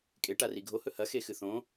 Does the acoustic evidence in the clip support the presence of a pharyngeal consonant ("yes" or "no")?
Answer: no